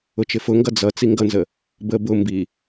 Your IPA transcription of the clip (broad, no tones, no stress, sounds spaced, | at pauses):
ʊ t͡ʃ ɪ f ʊ ŋ ɡ ʌ d͡z ʌ t͡s i ŋ ɡ ʌ n z ə | b ə b ʊ m b i